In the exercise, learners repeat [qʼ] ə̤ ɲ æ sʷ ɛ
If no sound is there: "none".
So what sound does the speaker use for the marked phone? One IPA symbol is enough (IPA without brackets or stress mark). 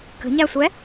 k